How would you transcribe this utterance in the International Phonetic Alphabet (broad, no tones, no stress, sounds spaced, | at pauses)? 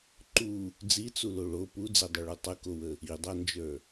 ǃ u | d͡z i t͡s u l o ɭ o p u d͡z e dˤ u ɭ u tˤ ə k o w ə | i dˤ a n d͡ʒ ə˞